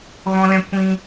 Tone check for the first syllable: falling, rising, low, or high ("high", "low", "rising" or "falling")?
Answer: low